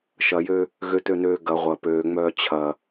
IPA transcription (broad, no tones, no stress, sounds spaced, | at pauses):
ʃ ɐ j ø | ɣ ø t ø n øː ɡ ɐ ʁʷ ɐ p øː ŋ͡m œː t͡ɕʰ ɐ